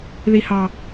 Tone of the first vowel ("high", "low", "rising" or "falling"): low